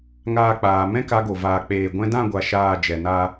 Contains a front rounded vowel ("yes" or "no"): no